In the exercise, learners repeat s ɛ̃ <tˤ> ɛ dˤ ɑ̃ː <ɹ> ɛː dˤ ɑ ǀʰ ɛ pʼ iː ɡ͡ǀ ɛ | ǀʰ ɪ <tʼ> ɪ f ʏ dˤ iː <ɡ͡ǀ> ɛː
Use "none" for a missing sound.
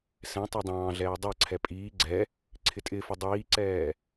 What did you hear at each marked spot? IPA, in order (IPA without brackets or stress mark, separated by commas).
tˤ, ɮ, tʼ, ǀ